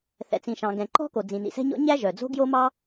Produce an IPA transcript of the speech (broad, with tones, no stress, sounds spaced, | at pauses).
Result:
θ ɛ̰˩ t͡s ĩ˩ ʃ ɑ̃˩ ɡ ɛ̃˩ ǃ ɔ̤˥ k o˩ d͡z ĩ˩ n̪ ḭ˩ s ɛ̤˥ ɲ ɔ̰˥ ɲ æ˥ ʒ œ˩ d͡z o̤˥ ɡ j o˥ m ɑ˥